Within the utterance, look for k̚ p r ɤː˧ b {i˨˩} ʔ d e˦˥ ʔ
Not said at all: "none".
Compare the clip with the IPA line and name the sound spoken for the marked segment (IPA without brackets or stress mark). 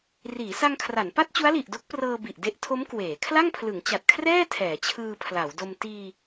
i˨˩